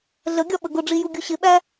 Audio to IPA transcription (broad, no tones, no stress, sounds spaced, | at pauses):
ɮ ə ɡʲ ɒ ɓ ə ɡ ʊ ɖ͡ʐ i j u ɡʲ u ɕ ɪ ɓ æ